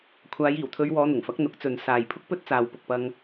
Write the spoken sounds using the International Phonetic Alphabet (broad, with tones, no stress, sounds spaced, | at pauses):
kʷʰ aː˨˧ j iː˨˩ w t̪ʰ ɵ˨˧ ɥ w ɔː˨˧ n̪ ʊ˨˩ ŋ f ɐ˨˥ k̚ n̪ ʊ˨˥ k̚ t͡s ɵ˨ n s aː˨ j pʰ ʊ˥ k̚ p ɵ˥ t̚ t͡s aː˨ w p ʊ˨ k̚ p ɐ˧ ŋ